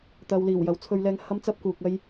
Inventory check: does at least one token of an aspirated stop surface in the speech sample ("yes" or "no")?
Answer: yes